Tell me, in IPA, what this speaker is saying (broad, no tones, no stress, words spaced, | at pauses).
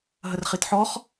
ɦərχitħɔχ